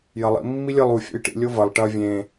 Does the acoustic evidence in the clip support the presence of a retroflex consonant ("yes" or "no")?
yes